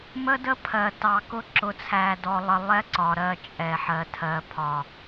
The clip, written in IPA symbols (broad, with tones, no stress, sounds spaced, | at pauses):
m ə˦ d ə˦ pʰ ɜ˨ t ɑ˨ k ʊ˦ ǁ ʊ˨ t͡sʰ æ˨ d ɔ˨ lˠ ə˨ lˠ ɛ˦ ǀ ɒ˨ ɾ ɜ˦˨ t͡ʃʼ ɛ˨ ħ ɜ˨ tʰ ɜ˨ pʰ ɒ˨